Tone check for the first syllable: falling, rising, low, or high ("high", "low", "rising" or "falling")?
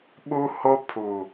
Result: high